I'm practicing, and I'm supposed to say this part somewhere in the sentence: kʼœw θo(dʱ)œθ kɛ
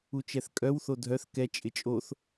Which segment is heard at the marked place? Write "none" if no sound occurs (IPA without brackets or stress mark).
dʱ